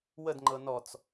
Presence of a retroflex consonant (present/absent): absent